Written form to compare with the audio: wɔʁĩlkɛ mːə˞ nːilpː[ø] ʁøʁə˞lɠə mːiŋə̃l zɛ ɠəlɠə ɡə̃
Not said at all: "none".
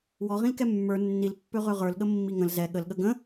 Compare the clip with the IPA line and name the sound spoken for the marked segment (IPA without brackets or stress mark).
ø